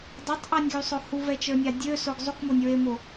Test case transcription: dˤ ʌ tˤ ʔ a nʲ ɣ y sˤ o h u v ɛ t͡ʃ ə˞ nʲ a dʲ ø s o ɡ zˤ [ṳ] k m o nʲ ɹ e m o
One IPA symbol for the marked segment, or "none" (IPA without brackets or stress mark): u